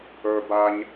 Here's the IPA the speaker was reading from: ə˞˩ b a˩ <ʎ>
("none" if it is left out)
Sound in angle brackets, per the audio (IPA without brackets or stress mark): ɲ